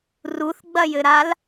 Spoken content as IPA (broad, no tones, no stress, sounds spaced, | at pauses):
r u θ ɡ͡b ɐ j ɘ ɾ a l